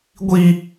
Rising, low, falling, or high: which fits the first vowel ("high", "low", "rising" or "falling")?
high